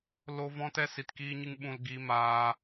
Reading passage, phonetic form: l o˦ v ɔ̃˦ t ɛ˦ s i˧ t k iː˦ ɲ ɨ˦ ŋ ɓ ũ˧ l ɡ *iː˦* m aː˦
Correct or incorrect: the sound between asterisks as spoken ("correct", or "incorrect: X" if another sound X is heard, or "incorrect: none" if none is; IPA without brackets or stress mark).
correct